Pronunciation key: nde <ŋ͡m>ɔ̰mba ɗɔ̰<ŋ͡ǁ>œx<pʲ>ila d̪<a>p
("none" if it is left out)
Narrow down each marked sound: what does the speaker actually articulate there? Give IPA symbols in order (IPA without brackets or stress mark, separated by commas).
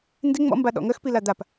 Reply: ŋ͡m, ŋ, p, a